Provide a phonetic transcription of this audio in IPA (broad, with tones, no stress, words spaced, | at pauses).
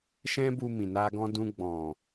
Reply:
ʃɛ̃˦bu˧mĩ˨ na˧ɡɔ̃˧dũ˧ ɡ͡bɔ̃˨